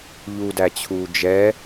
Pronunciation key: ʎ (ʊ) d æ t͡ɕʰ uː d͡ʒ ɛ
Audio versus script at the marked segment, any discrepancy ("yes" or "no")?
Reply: yes